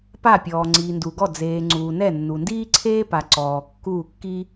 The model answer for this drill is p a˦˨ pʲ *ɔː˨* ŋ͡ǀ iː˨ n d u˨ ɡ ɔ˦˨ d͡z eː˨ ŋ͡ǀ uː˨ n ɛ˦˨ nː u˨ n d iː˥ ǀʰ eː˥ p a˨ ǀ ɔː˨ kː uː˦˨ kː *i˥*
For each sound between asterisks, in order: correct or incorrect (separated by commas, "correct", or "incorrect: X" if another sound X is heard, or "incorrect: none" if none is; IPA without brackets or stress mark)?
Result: correct, correct